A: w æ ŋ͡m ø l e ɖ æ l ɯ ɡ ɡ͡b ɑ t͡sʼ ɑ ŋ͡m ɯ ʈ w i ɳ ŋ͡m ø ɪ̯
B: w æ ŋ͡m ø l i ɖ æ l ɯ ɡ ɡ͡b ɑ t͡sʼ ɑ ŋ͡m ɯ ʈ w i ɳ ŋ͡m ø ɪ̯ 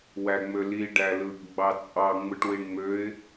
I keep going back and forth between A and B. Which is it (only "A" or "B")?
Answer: B